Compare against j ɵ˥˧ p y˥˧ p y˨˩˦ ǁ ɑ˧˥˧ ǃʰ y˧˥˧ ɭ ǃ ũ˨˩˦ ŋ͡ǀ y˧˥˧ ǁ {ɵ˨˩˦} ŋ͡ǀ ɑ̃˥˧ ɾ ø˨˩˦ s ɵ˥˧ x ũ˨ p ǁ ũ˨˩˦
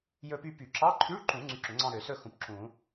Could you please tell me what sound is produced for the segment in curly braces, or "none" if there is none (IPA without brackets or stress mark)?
ɵ˨˩˦